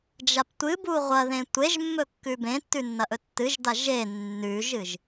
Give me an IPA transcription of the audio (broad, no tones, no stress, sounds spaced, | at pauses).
d͡ʒ a p tʷ ɨ b u ʁʷ ɐ ð ẽ tʷ e ʒ mː ɵ kː ʉ b ẽ tː ʉ nː ɐ ʔ ɵ tː ɨ ʒ d a ʒ e nː ʉ ʒ ɨ ʒ